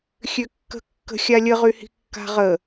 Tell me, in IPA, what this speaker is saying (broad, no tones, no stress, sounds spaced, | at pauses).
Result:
xʲ ø kː ə̤ kː ə̤ xʲ a lʲ ə ʁ y h i̤ kː a̤ ʁ ə